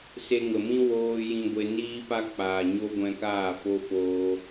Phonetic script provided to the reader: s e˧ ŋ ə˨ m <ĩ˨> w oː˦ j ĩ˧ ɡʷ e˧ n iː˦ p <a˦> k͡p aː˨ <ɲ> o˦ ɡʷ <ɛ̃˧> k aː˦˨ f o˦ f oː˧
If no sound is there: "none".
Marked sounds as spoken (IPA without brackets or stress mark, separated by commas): ĩ˦, a˦, ɲ, ɛ̃˧